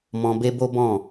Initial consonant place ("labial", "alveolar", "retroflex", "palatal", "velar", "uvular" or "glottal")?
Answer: labial